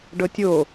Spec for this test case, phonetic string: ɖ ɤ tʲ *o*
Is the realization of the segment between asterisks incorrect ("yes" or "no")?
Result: no